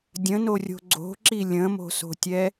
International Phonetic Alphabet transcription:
dʲ ə̃ n o rʲ o̤ ɡ͡ǀ o̤ ǁ i lʲ ə̃ m o̤ s o̤ tʲ ɛ

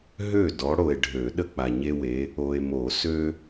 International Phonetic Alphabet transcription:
ɦ ø˥˩ d ɔ˨˦ ɽ o˨ e̯ ɖʱ ø˨˩˦ ɗ ə˦ k͡p a˨ ɲ e˦ w e˨˦ | o˨ e̯ m o˨˩˦ s ø˦

